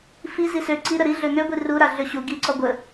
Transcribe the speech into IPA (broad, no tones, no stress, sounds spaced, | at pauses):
f i z i s ø ǀ i ɾ ə ɾ i ɮ ø ŋ ø ɡʷ i r u ɾ a ɮ ø ɕ u ɡ i ǀ ɔ ɡʷ ə